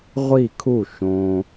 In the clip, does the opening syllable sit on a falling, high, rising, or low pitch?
falling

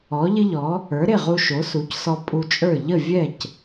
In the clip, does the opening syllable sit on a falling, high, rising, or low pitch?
rising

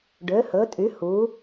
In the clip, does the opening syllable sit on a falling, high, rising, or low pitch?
rising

